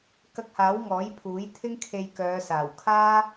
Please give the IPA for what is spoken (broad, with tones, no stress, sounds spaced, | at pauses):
k ɐ˧ k̚ h aː˨˥ w ŋ ɔː˨˥ j pʰ uː˨˥ j t̪ʰ ɪ˥ ŋ kʰ e˧ j k œː˨˧ s aː˨˩ w kʰ aː˥